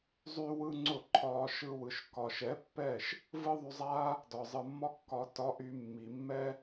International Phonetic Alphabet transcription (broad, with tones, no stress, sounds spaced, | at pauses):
zˤ y˦ w ɯ˦ ŋ͡ǀ ʊ˦˨ ǃʰ ɒː˧ ʃ ɯ˧ w ɯ˨ ʃ k ɒ˨ ʃ ɛ˨˦ pː ɛ˦˨ ʃ | v ɯ˦ ðˤ y˧ zˤ aː˦ | d ɒ˨ zˤ ɯ˨ mː ɒ˦ kː ɒ˧ t ɒ˧ ʔ y˧ mː i˨ mː ɛ˦